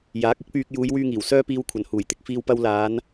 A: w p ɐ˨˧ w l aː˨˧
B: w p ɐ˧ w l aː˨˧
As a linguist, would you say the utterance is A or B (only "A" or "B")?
B